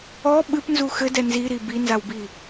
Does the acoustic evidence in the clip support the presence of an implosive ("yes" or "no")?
yes